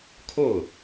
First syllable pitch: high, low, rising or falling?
falling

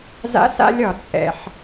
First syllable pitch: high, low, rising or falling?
high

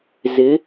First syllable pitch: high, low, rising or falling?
rising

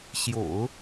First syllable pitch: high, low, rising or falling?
low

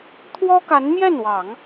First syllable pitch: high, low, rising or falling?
high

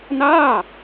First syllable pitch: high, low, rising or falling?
falling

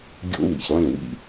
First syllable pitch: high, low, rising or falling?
high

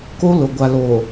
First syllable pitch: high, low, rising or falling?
high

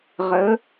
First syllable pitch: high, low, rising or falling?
rising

